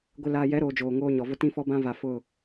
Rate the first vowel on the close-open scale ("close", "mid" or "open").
close